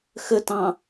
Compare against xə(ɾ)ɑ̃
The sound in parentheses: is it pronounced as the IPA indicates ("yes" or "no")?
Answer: no